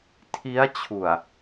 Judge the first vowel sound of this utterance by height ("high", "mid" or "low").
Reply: high